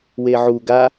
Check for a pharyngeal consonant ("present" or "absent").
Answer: present